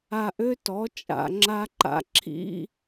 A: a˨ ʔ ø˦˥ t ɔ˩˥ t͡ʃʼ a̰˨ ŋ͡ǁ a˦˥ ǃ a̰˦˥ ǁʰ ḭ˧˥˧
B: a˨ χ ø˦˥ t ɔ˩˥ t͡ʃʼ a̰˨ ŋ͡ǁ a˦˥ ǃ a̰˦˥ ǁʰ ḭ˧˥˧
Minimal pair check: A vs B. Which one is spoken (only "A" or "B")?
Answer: A